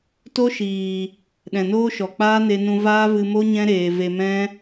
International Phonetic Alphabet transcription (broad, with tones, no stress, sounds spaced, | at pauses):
t o˦ ʃ iː˨ | ɗ ɛ̃˨ n oː˦ ʃ ɔ˨ k͡p aː˦ n e˧ n ũ˧ v aː˦ v ɨ˧ m o˦ ɲ ɛ̃˦ ɾ eː˧ v e˧ m ɛ̃˦